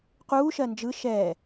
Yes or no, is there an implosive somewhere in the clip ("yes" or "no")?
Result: no